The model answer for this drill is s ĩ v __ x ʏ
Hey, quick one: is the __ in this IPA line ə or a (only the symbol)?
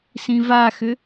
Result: a